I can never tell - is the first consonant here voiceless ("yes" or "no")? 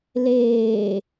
no